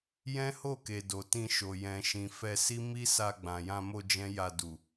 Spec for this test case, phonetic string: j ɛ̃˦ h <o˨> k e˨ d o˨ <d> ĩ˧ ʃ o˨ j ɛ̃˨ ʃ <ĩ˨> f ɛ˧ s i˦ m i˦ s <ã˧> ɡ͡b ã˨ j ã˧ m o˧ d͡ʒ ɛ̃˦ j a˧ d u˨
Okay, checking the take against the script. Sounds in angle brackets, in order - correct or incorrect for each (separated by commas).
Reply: incorrect, incorrect, correct, incorrect